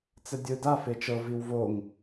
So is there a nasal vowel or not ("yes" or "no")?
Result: no